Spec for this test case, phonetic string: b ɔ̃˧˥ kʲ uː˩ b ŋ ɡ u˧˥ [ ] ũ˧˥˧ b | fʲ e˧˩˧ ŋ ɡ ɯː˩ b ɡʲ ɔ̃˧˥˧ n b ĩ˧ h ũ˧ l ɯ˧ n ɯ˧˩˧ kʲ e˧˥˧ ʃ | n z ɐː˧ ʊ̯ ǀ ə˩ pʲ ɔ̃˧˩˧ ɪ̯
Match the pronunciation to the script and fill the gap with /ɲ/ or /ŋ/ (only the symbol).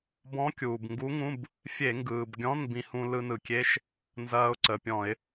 ŋ